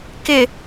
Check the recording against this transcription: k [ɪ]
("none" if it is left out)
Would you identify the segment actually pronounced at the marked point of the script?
ɪ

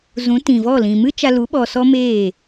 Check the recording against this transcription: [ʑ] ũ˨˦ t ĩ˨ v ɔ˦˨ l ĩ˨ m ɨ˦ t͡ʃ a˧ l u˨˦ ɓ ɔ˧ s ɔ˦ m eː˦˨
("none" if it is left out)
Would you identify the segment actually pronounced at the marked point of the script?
z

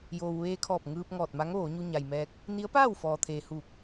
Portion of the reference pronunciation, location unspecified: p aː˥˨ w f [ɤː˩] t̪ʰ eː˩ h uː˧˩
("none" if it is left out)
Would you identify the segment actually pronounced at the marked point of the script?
ɔː˩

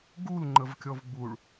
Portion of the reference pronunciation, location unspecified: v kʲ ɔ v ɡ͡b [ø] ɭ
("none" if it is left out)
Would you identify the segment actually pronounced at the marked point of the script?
u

